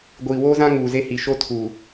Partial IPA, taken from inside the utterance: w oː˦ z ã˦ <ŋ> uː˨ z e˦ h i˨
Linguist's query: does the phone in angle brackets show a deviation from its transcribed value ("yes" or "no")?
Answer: no